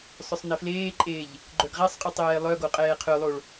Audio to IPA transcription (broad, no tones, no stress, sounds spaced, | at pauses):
sˤ œ sˤ n ɛ f l eː ǃʼ eː ʎ | ɡ͡ǃ œ ɡ ʁ ɛ sˤ qʼ y tˤ eː lˠ œ ɡ o qʼ ɛː qʰ ø lˠ o ɭ